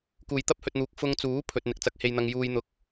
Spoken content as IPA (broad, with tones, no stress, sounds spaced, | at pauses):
k uː˨˩ j t̪ ɐ˥ p̚ h ɵ˨ t̚ n̪ uː˨ k̚ f ʊ˧ ŋ t͡s uː˨˥ pʰ ɵ˧ t̚ n̪ ɪ˨ k̚ t͡s ɐ˧ k̚ h e˧ j n̪ ɐ˧ ŋ j uː˥ j n̪ ʊ˥ k̚